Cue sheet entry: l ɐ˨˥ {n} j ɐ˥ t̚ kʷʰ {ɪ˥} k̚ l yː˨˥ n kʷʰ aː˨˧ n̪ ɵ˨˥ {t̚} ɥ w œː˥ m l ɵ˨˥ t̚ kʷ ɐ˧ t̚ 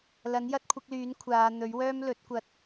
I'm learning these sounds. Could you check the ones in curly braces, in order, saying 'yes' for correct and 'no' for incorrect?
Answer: yes, no, no

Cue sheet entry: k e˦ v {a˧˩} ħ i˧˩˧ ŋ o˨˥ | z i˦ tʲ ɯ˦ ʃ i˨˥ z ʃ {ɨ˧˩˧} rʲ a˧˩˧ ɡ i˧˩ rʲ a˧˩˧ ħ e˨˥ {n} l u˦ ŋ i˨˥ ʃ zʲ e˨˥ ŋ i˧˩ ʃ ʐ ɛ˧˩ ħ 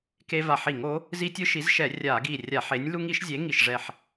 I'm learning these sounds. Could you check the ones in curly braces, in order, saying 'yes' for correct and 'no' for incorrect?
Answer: yes, no, no

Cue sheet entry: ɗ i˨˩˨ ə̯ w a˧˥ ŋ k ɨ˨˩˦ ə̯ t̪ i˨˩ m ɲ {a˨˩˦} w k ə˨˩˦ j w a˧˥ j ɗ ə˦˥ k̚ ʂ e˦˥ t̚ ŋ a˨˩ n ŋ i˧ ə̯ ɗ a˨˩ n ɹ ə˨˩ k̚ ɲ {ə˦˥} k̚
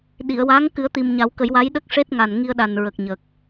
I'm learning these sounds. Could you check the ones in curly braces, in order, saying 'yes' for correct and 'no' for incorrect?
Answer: yes, no

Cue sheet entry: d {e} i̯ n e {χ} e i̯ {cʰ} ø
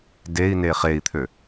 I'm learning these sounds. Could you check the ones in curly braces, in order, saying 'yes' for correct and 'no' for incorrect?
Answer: yes, yes, no

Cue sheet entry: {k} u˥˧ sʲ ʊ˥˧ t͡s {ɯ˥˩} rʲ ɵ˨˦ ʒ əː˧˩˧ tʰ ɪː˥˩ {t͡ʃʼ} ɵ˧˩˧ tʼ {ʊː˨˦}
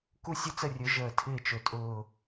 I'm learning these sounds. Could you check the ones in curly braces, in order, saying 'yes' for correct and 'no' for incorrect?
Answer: yes, no, no, no

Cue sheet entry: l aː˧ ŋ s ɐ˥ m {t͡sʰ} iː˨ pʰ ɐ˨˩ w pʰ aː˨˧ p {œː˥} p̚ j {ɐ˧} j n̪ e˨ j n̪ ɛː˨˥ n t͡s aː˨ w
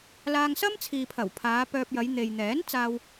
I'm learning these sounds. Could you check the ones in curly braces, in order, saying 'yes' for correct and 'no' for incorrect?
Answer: yes, no, no

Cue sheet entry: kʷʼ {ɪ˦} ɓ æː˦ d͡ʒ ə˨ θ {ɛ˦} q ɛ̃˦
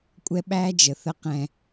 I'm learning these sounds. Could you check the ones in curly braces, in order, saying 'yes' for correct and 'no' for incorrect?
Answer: no, no

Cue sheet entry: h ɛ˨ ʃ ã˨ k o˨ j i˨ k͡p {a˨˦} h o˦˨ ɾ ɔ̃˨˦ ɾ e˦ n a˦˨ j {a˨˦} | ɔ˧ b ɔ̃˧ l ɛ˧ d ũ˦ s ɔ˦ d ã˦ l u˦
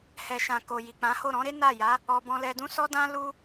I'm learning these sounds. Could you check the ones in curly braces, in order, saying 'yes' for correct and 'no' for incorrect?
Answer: no, yes

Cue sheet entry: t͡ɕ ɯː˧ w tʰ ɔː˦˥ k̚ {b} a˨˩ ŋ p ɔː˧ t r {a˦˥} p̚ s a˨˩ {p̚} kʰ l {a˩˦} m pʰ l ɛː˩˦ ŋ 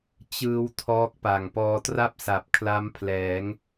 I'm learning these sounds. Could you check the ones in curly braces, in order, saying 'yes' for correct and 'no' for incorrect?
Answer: no, no, yes, no

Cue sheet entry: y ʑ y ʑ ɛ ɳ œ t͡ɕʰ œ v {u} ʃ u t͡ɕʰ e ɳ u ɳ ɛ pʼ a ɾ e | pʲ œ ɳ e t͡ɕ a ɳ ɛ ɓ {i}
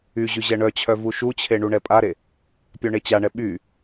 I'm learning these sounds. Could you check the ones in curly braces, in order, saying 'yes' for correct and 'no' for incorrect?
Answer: yes, no

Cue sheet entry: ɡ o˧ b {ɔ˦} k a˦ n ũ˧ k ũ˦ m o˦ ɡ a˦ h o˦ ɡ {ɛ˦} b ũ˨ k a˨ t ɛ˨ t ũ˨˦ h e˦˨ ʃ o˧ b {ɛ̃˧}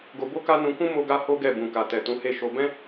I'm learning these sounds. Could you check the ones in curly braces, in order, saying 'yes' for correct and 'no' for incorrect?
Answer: no, no, no

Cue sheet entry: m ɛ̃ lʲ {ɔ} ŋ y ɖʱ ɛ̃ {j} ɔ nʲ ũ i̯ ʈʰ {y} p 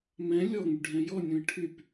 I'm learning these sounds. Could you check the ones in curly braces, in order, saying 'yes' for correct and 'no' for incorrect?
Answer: yes, yes, yes

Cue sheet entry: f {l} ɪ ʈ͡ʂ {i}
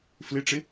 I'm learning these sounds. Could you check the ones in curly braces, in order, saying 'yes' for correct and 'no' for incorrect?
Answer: yes, no

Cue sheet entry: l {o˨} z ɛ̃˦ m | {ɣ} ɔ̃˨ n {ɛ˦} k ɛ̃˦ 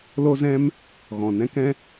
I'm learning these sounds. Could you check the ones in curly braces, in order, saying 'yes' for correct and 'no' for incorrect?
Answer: no, yes, no

